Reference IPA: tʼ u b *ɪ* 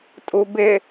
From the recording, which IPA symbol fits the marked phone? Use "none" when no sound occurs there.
ɪ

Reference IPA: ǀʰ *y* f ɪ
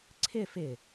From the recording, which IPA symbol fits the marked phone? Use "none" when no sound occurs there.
ɪ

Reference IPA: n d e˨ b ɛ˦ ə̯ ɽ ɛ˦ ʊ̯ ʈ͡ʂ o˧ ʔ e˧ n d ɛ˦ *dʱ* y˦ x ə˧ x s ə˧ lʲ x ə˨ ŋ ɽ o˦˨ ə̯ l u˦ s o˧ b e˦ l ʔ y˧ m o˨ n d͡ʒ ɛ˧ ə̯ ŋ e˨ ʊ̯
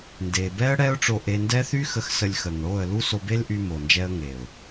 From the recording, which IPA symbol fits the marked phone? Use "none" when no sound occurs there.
θ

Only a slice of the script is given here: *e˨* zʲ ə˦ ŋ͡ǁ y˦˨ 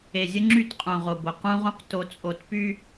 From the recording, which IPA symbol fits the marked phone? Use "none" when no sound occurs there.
e˨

